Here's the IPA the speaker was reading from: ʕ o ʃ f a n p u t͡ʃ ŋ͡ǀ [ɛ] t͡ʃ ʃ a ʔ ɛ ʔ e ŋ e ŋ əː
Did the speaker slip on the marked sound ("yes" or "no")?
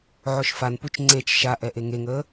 yes